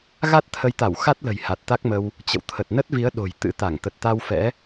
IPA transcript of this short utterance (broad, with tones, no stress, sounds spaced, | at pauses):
ɣ a˦˥ t̚ t̪ʰ ə˨˦ j t̪ a˧˩ w x a˦˥ t̚ l ə̤˨˩ j h a˨˩ t̚ t̪ a˦˥ k̚ m ə˧ w | t͡ɕ ə̰˧˨ w t̪ʰ ə˨˩ t̚ n ə˦˥ t̚ v i˨˦ ə̯ ɗ o̤˨˩ j t̪ ɨ̰˧˥ t̪ a˧˩ ŋ t̪ ə˨˩ t̚ t̪ a˧ w f ɛ̰˧˥